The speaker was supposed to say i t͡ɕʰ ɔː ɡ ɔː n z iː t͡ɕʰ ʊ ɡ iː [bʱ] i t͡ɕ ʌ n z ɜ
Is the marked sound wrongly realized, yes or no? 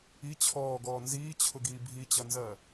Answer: no